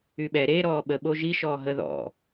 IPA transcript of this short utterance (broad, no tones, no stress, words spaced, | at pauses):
yɓɛ ɾe ɾɔːɓə ɓoʒi ʃɔːɦə ðɔ̰